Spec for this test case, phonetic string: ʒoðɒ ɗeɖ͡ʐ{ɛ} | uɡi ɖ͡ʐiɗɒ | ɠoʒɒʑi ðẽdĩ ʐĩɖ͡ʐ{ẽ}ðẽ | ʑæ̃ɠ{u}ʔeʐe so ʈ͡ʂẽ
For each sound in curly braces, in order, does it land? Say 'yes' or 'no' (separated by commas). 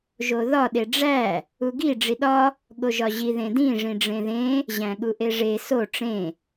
no, yes, yes